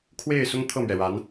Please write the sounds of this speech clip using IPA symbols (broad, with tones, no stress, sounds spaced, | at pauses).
kʰ w e˥˩ ɪ̯ s ʊ˥ ŋ t̪ʰ ɤ˥˩ m ɥ ɛ˩ ɻ a˧˥ n